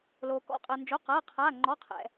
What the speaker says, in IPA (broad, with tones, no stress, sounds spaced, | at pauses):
l oː˩ k ɔ̰˩˧˩ qʼ əː˩ n d͡ʒ o˩˧˩ q ɤː˩˧˩ qʰ aː˩˧˩ ŋ͡ǃ ɔ˩˧˩ qʰ ɛ̰˩